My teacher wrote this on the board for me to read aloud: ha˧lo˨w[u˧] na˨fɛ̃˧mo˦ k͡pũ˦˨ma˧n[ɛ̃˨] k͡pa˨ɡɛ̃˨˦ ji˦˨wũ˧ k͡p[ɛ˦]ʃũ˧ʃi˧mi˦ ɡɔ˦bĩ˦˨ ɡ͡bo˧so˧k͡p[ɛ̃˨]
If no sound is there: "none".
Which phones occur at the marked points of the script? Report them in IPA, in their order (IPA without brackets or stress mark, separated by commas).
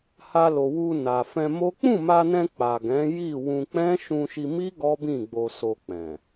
u˧, ɛ̃˧, ɛ̃˦, ɛ̃˨